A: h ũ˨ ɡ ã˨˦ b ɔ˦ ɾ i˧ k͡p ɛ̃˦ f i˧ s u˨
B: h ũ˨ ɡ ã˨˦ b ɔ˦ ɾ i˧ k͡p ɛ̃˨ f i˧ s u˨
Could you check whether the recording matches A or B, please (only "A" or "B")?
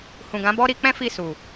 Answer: A